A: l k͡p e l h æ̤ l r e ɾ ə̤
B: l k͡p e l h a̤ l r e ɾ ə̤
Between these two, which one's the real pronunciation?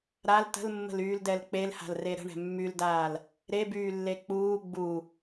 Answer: B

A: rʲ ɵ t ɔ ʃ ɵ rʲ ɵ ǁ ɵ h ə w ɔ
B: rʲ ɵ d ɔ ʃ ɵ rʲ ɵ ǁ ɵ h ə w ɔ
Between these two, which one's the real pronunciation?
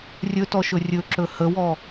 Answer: A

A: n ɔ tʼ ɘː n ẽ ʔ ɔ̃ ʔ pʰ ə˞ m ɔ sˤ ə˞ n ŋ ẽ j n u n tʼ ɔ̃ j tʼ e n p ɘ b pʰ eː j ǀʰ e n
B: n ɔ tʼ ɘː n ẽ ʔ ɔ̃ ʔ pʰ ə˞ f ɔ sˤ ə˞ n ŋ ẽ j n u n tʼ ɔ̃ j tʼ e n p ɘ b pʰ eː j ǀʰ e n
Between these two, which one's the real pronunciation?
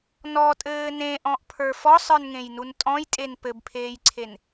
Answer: B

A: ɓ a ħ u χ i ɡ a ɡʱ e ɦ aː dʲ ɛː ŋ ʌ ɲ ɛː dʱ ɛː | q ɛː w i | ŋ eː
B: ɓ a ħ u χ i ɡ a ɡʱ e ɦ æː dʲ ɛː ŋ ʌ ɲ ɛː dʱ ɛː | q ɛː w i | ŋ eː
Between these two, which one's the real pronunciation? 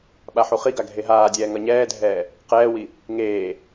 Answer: A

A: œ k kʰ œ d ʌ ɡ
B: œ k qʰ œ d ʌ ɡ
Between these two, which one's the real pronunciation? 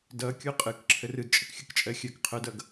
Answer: B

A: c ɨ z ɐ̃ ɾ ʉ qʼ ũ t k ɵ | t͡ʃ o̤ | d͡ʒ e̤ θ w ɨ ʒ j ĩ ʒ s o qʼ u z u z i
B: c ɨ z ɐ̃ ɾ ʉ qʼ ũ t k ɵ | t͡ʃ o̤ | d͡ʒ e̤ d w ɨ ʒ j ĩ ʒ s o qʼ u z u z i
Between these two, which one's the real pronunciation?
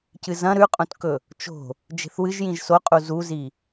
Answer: A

